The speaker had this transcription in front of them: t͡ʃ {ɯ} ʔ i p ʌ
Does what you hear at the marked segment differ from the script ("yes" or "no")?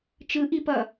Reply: no